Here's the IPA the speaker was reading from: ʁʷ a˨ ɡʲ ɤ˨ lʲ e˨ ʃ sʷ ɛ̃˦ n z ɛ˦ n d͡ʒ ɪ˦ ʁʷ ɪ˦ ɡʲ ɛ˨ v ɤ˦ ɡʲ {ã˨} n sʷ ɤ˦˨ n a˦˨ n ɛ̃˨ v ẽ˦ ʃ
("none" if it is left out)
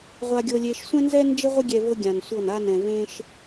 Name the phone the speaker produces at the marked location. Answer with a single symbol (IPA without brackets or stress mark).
ã˨